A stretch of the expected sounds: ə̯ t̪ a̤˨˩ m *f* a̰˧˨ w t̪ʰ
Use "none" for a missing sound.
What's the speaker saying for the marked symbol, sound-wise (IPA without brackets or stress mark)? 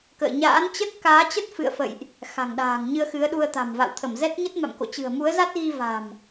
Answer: v